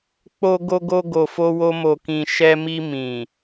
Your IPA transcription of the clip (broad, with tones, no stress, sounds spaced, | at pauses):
k͡p o˧ ɡ o˧ ɡ o˧ ɡ o˨ f o˧ w o˧ m o˨ k ĩ˨ ʃ ɛ˧ m i˧ m ĩ˨